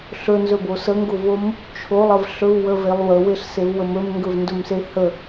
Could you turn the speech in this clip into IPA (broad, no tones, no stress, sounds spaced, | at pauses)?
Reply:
ɬ ɵ n z ɵ b o s ə ŋ ɡ o v o m | t͡ʃʰ o lˠ ə v ɬ ɵ v w ə v e lˠ w ə w e ɬ s e v w ə m ɵ m ŋ ɡ ɵ v n d ɵ m s e h ə